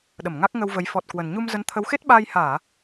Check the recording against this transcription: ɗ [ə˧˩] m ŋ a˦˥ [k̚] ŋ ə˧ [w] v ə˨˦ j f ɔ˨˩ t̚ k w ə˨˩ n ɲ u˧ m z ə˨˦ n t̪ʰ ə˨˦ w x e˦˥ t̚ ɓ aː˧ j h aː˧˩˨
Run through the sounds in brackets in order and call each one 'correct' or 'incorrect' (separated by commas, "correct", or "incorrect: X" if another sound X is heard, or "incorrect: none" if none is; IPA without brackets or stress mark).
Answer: correct, correct, correct